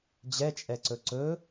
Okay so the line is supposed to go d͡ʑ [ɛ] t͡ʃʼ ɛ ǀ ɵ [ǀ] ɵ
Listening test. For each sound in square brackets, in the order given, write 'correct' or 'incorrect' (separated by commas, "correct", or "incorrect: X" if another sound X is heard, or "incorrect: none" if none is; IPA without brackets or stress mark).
correct, correct